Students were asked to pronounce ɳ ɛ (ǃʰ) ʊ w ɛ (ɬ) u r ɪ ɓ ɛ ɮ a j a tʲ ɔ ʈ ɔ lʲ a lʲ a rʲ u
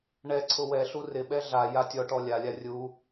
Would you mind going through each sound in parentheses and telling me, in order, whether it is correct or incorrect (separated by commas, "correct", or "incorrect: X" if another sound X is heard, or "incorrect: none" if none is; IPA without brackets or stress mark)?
incorrect: ǀʰ, correct